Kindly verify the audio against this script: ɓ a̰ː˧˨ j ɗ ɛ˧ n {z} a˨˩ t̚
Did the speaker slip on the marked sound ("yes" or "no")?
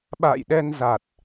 no